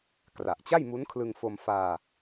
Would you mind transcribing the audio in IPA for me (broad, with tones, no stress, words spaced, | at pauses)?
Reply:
kra˨˩ʔt͡ɕa˥˩jmu˦˥nkʰlɯ˧ŋ fo˧m faː˧